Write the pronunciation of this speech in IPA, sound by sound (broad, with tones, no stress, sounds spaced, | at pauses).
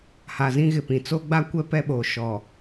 h a˨ z ĩ˦ ɣ ɪ˨ p ĩ˨ t͡s o˦ ɡ͡b a˦ kʷ ɛ˦ p ɛ˦ ɓ oː˨ ʃ ɔ˨